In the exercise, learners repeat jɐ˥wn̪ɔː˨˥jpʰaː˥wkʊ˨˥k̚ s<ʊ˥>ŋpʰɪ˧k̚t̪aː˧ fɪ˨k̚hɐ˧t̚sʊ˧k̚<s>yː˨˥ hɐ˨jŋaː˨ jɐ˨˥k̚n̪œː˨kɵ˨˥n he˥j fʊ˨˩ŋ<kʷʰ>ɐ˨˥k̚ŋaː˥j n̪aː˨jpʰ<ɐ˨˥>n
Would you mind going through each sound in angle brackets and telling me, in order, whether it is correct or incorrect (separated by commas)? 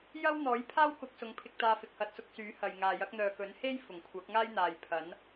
incorrect, correct, correct, correct